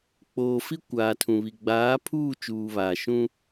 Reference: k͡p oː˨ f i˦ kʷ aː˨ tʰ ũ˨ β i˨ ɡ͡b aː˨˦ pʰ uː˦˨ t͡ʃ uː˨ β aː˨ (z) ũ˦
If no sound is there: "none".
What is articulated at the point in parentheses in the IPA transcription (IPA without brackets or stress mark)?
ʃ